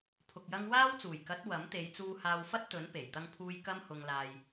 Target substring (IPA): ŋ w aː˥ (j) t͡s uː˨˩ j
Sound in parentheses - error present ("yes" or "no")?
yes